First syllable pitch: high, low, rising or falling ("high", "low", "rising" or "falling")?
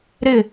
falling